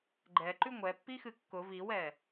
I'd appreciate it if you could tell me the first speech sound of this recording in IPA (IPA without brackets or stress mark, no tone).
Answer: ɡ͡ǃ